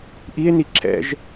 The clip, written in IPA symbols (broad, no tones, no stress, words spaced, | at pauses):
ʔie̯ni ǁʰɛ̰ʒ